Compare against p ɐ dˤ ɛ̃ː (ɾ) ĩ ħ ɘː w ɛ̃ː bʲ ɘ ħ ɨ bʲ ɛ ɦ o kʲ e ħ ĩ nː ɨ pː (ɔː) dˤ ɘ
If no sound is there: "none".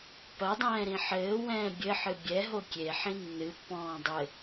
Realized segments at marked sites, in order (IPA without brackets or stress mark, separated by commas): ɾ, ɔ̃ː